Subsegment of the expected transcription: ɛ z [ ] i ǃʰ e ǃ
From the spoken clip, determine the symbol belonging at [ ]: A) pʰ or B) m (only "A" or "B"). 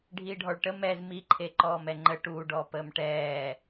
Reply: B